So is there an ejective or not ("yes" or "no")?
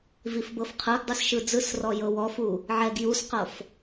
no